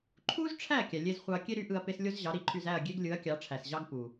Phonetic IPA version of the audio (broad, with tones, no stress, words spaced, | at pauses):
ǃʰu˥zʈ͡ʂʰæ˥˩ kʲæ˩lʲe˧z χʷɑ˧ɐ̯kʲe˥ ɾy˩˥ʔɯ˧ɐ̯ pe˥s lʲo˥zʑɑ˩˥ɾi˩˥ǃʰy˧z æ˥˩ɐ̯ ɡʲe˥ɡlʲɯ˩˥ɐ̯ kʲɑ˩˥ʈ͡ʂʰæ˩sʑɑ˥ɡ pu˩